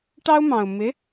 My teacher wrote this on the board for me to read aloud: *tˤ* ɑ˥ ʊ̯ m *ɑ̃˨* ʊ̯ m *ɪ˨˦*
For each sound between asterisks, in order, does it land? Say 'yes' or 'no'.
no, yes, yes

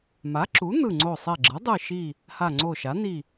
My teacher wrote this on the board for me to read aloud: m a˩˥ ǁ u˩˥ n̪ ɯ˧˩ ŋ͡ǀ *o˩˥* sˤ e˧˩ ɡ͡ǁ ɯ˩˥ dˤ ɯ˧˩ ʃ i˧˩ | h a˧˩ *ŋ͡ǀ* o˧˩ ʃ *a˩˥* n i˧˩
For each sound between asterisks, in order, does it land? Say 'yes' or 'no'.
no, yes, yes

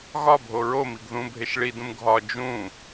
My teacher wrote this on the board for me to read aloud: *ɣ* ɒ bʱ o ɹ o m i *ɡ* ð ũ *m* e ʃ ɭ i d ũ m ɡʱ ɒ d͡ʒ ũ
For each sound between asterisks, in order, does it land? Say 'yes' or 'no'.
yes, yes, no

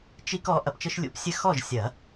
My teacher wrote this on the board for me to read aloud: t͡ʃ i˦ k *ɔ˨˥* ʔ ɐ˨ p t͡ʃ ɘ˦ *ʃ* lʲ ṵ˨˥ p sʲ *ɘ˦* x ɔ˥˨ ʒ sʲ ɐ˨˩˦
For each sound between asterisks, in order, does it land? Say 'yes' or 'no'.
yes, yes, yes

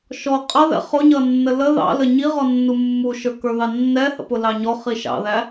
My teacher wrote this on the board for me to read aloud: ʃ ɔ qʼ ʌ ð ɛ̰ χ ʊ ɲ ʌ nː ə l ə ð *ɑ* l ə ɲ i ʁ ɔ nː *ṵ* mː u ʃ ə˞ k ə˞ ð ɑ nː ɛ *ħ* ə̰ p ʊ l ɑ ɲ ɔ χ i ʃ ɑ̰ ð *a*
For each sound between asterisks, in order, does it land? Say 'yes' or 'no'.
no, no, no, no

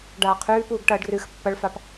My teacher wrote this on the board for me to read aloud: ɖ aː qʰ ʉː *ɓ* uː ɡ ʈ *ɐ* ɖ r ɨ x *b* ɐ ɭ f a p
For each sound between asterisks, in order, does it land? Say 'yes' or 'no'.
no, no, no

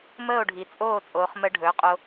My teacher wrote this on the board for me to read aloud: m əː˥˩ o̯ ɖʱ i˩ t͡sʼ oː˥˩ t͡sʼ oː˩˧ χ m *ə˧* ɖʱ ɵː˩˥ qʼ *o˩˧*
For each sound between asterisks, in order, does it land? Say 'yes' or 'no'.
yes, no

